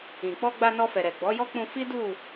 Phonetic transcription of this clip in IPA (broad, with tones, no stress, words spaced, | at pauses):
ĩ˨k͡pɔ˧ɡ͡ba˧ nɔ˧fɛ˨ɾɛ˨ ɡ͡bɔ˨˦jɔ˦k͡pũ˧ fi˦du˦˨